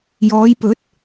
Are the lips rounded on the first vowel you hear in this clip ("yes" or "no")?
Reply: yes